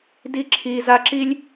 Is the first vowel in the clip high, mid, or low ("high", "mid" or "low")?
high